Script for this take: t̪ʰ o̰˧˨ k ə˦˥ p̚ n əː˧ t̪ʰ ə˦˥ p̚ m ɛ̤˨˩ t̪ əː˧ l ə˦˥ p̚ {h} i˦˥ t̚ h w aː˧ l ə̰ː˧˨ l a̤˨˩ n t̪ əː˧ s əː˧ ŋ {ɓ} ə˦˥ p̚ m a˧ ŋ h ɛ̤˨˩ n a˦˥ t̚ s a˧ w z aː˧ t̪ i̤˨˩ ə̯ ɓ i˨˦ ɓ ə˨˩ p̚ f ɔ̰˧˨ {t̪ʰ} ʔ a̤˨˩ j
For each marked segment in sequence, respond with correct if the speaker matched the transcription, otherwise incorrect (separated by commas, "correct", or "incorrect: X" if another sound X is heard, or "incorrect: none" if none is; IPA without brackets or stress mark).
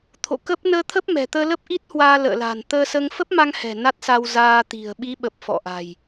incorrect: ʔ, incorrect: f, incorrect: none